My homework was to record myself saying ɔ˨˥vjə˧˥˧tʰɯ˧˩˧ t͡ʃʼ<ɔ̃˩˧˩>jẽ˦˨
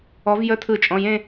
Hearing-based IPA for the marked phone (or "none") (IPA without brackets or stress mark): ɔ̃˩˧˩